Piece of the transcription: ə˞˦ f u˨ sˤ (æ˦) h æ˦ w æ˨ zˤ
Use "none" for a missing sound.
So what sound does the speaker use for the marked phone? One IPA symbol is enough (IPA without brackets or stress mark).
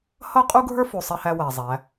ɛ˦